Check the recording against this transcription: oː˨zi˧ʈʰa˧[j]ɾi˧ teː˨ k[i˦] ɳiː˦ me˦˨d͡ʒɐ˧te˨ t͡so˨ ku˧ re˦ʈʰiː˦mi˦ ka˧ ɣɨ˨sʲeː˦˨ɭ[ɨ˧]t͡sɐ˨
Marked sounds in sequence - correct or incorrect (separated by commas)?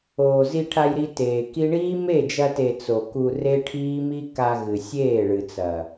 correct, correct, incorrect